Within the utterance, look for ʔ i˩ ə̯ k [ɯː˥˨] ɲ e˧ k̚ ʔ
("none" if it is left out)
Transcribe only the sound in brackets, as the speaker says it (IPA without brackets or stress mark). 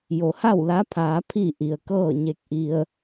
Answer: ɤː˥˨